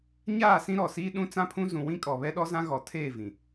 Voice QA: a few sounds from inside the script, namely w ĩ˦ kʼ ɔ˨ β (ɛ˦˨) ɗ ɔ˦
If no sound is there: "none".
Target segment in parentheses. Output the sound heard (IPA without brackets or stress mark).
ɛ˦